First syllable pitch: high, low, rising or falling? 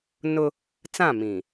high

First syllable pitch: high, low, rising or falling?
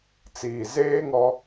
low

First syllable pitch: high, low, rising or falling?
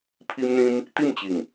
high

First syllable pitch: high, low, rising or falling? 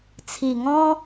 low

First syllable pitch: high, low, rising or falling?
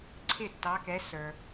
falling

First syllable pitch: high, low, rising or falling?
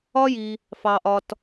high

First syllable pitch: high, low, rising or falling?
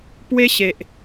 high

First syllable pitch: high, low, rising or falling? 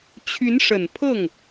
rising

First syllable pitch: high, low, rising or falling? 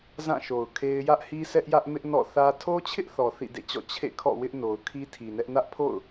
falling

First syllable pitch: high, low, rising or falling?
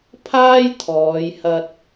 high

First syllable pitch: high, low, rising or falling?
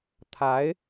rising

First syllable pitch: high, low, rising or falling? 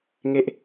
high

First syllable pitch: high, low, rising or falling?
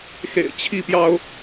low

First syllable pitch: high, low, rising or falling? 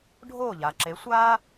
falling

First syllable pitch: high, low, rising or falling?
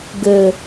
low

